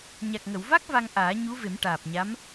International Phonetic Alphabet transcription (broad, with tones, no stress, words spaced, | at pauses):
ɲa˨˩k̚ŋə˨˩˨wva˦˥k̚ va˧ŋʔaː˨˩˦ ɲu˧˥ve˨˩˦mʈaː˨˩p̚ɲa˧˥m